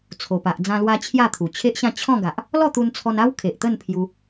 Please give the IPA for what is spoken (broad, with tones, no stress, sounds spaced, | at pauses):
t͡sʰ o˨˩ p a˨ ʔ d͡z ã˧ l w a˧ t͡ɕʰ j a˥˧ t̪ʰ u˨˩ t͡ɕʰ e˦ ʔ ɕ ã˥˧ t͡ɕʰ ɔ̃˥˧ ɡ a˨ ʔ | l ɔ˥˧ t̪ u˧ n t͡sʰ ɔ˧ n a˦ w kʰ e˨ ʔ t̪ ə˥˧ n pʰ j u˧